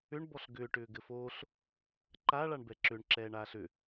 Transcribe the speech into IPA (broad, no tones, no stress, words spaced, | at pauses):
ʏɳ bɔɬɡʏː ʈʏːɡɘfoːɬ | ǃa ɭaɳbɛǁʏɳ ǁɛːɳaːɬʏ